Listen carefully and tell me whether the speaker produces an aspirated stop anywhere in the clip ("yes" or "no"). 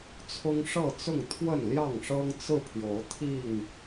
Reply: yes